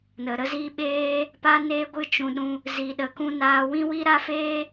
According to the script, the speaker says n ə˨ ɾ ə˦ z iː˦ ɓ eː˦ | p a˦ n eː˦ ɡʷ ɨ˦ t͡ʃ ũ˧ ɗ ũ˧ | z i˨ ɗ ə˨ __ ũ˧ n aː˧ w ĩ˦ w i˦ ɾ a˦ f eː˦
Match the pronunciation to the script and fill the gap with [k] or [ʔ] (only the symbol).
k